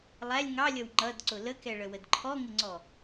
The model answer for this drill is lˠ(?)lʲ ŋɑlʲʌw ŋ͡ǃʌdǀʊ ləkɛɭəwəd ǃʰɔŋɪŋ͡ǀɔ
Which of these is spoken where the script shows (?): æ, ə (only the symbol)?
æ